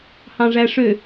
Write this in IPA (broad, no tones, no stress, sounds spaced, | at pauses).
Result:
h ɑ̃ ʐ æ ʂ ø